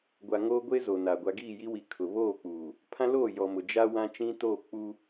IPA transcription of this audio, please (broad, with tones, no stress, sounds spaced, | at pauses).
ɡʷ a˨ ŋ oː˦ ɡʷ e˦ z o˨ n a˨ ɡʷ a˨ ɡ iː˦˨ j i˦ w i˨ kʰ ʊ˨ β oː˦˨ k͡p uː˨ | pʰ ã˦ l o˦˨ j ɔ˨ m ʊ˨ d͡ʒ a˦ w ã˦ t͡ʃ ĩ˦ t oː˦˨ k͡p u˦